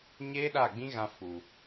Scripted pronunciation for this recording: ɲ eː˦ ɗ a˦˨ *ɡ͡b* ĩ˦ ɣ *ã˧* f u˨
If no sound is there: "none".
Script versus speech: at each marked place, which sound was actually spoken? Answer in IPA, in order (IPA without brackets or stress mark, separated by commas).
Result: ɡ͡b, ã˧